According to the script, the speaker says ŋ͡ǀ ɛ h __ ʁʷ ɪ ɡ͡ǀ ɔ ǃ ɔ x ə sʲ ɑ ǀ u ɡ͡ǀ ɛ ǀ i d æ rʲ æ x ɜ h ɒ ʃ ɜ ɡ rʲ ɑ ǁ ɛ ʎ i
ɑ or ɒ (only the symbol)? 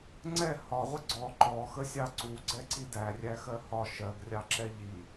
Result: ɒ